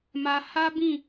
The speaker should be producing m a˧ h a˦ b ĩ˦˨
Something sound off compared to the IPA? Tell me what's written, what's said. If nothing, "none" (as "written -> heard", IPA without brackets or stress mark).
none